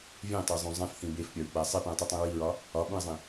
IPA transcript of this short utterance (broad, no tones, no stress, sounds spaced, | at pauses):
vʲ ẽ tˤ e zˤ ũ zˤ ẽ f θ ĩ b e f pʲ ɒ ɹ k͡p æ sˤ i p ũ ə̯ tˤ i tˤ ĩ ɹ i ɹ ɒ | ɒ ɓ ũ ɪ̯ zˤ ĩ